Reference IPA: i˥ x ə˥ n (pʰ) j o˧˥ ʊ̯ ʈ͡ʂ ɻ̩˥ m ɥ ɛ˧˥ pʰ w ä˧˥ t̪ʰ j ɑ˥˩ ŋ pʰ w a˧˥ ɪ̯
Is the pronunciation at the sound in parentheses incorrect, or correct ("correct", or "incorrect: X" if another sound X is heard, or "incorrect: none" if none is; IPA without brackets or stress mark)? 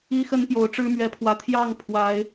incorrect: p